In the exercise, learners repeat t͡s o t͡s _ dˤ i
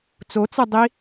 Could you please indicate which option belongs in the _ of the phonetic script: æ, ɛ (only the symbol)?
ɛ